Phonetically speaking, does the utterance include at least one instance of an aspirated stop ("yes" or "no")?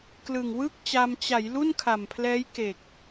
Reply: yes